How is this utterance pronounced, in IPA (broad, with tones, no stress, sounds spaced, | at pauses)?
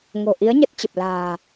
ŋ o̤˨˩ ʔ i˨˦ ə̯ ɲ ə˦˥ t̚ t͡ɕ ə˨˩ p̚ l a̤ː˨˩